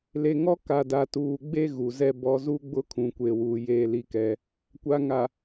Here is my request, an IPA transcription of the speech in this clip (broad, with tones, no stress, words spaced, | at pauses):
le˨ŋɔ˦ ka˨da˨tuː˨ɡ͡be˦ ɣu˨zɛ˦ bɔ˦ zu˦ɡ͡bʊ˦kʰũ˨ kʷe˨wuː˨ jeː˦li˦kɛ˦ | kʷa˨ŋa˨